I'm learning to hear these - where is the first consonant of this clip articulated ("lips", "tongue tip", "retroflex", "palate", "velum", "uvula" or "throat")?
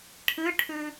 retroflex